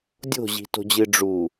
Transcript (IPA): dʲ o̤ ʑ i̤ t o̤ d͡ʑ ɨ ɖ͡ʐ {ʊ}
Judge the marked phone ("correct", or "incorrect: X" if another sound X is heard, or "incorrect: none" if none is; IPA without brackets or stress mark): incorrect: u